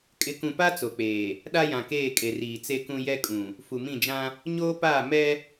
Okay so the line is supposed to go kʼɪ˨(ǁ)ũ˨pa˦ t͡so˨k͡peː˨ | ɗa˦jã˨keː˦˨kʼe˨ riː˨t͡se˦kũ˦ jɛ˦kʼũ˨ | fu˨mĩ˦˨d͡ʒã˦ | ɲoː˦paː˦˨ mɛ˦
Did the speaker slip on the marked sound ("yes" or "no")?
yes